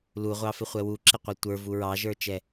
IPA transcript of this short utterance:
l u ʁʷ ɑ f ɪ χʷ ɛ w u ǁ ɪ qʷ ɛ tʷ ə˞ v u ɹ ɑ ʒ ə˞ t͡ʃ ɛ

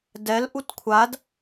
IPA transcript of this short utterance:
d ɛ l ʔ u t kʷʰ a d

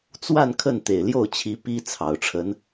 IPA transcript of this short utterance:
t͡s w a˥˧ n kʰ ə˥˩ n t̪ e˨˩ ɪ̯ l j o˥˩ ʊ̯ t͡ɕʰ i˧˥ p i˥ t͡sʰ ɑ˨˩ ʊ̯ ʈ͡ʂʰ ə˧˥ n

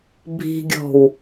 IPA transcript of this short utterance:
bʱ i̤ ɡʲ ɔ̤ w

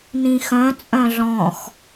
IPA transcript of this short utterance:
n ĩ x œ̃ t͡sʼ œ̃ ɮ ɔ̃ x

